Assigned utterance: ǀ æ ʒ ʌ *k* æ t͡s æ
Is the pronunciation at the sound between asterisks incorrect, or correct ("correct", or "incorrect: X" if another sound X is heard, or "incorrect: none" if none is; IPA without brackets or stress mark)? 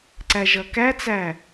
correct